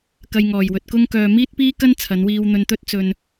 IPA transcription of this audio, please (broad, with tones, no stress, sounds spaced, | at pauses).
k ɐ˧ j ŋ ɔː˨˩ j w ɵ˨ t̚ k ʊ˥ ŋ k œː˧ m iː˥ t̚ p iː˥ k ɐ˥ n t͡sʰ ɐ˨˧ n w iː˧ w n̪ ɵ˧ n t̪ ɵ˥ t̚ t͡s ɵ˧ n